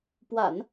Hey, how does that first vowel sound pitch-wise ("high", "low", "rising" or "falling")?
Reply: low